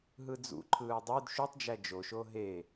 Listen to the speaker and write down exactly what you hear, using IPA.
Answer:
ɦɯd͡zṵǃʰɯː dˤød ʃytˤd͡ʒæ d͡ʒoʃo ɦe

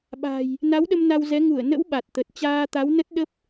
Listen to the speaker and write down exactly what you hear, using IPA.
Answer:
ɓa̤˨˩j | na˨˦wɗə˧m na˧wzɛ˨˦ ŋu˧˩ə̯nə̰˧˥w ɓa˨˩t̚t̪ə˨˩t̚ t͡ɕaː˧t̪a˨˦w nə˦˥t̚ ɗə˦˥p̚

